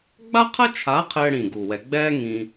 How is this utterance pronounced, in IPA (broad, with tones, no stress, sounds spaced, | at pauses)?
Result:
ɡ͡b a˥ qʰ ɐ˥ t͡ʃʰ a˨˥ qʰ ɘː˥ ɽ ĩ˧˩ ɡ u˧˩ w ɛ˧ ɡ͡b ɛː˥ ŋ ĩː˧